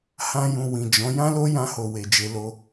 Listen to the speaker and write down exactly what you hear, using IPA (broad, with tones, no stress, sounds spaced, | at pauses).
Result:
h ã˦ j ũ˧ w ĩ˨ d͡ʒ ɔ̃˨˦ j ã˦ l o˦ j ã˧ h o˨ w e˨ d͡ʒ e˧ l o˧